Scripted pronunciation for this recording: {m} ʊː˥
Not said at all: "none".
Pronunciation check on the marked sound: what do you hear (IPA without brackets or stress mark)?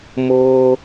m